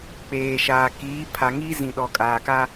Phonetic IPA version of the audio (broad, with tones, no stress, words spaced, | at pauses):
k͡peː˨ʃaː˨ kiː˨˦pʰa˨ŋi˦ zĩ˨ ɗɔ˨kʼaː˨ka˦